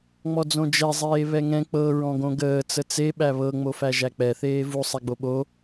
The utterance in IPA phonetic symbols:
ŋ͡m ɔ d͡z õ d͡ʒ ɛ zˤ eː β ɛ ŋ ɛ̃ k͡p ɤ ɹ ɔ̃ ɡ õ ɡ əː t͡s ə t͡s e ɓ æ β ɤ ŋ͡m o f æ ʒ æ k͡p ɛ θ eː v u sˤ ɛ ɡ͡b o ɓ o

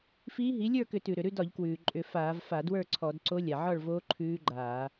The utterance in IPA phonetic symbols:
f iː˧˥ ɦ i˩˥ lʲ ə˞˥˨ k ʏ˧˩˧ t ʉ˩ ɾ ʏ˩ ɾ ʉ˥˨ d ɒ˧˩˧ ʎ k w ʉː˩ ǃʼ ʏ˧˩˧ f aː˧˩˧ v f a˧˩˧ d w ə˞˥˨ ǀʰ ɔ˧˩˧ d ǀ o˧˥ lʲ a˩ ʕ ɒ˥˨ ɭ v oː˧˥ ǃʰ ʉː˧˥ ɡ͡ǃ aː˧˩˧

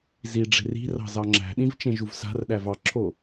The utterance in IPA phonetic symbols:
z i ɖ͡ʐ e̤ r i̤ r ɑ̤ z ɑ ŋ͡ǁ æ̤ ɗ ĩ v t͡ʃ ẽ ʒ u v s a̤ r ɗ æ v ɑ ǁʰ o

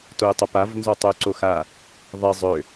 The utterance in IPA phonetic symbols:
t o u̯ tˤ ə p a v n z ɔ tˤ ø u̯ ǀ o x a | ðˤ e zˤ ø

